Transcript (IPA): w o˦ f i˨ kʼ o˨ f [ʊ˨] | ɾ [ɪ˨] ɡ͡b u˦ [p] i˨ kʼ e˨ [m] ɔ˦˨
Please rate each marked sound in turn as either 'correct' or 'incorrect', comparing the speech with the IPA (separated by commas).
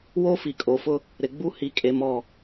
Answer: incorrect, correct, incorrect, correct